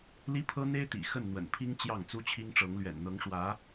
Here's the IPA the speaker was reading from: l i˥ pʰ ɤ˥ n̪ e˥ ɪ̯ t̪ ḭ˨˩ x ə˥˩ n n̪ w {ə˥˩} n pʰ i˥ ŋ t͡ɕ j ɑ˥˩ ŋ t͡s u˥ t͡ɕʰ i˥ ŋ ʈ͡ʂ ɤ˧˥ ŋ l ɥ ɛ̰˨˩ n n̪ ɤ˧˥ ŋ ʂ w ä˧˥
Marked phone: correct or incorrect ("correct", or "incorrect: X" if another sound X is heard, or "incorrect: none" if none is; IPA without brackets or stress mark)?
incorrect: ə̰˨˩